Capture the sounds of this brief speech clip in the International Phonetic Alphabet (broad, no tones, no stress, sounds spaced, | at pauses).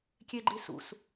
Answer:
kʲ e ɡ͡ǃ i s ṵ s